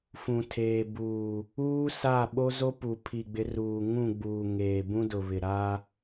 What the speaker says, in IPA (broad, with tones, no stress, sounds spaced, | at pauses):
f ũ˨ tʰ eː˨ b uː˨ | uː˦ s a˦˨ ɓ o˦ z o˦ p u˨ pʰ i˨ ɡ͡b ɪ˨˦ r uː˨ ŋ ũ˦˨ ɡ͡b uː˨ ŋ eː˨ b ũ˦ d ʊ˨ β ɪ˨ ɾ a˦